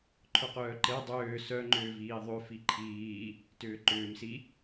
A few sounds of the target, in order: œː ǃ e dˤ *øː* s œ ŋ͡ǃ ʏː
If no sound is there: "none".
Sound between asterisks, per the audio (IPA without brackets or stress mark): øː